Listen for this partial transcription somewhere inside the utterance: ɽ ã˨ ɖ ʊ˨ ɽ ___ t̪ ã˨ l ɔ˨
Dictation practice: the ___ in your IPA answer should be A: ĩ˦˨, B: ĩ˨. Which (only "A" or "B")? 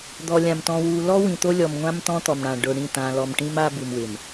A